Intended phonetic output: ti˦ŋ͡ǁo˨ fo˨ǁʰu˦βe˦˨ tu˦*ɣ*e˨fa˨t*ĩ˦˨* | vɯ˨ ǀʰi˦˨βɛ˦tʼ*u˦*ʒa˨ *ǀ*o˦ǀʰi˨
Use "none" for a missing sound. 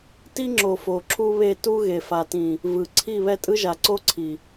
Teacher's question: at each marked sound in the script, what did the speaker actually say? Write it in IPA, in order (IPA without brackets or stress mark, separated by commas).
ɣ, ĩ˨, ɯ˦, ǀ